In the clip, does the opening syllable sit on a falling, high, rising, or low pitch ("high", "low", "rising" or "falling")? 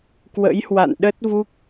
rising